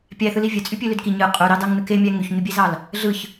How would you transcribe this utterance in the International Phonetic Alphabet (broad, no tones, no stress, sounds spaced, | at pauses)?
pʲ æ θ ɯ l i vʲ ø t͡sʼ y pʲ ø l ø d k i ɲ ɯ qʼ u ɾ ɑ d ɑ ŋ n ɯ k e mʲ æ ŋ y ç ɲ y bʲ e z ɑ l | ɮ ɯ ç